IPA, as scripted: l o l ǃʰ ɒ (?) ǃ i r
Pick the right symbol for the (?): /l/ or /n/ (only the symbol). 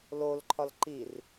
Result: l